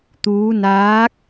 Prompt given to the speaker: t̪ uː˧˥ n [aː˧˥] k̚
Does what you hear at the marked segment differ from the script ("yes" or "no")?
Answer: no